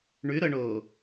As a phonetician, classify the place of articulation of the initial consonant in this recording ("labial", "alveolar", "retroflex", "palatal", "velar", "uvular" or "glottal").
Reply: retroflex